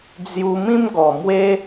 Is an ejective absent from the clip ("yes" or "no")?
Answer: yes